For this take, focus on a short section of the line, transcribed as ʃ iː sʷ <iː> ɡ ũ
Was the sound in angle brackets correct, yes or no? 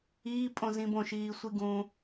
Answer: no